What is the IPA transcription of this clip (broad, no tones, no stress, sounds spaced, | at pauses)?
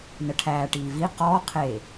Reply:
n ə ʈʰ æː ʈ iː v i q ɔː qʰ eː